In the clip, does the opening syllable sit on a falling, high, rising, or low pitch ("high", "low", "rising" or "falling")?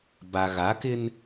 low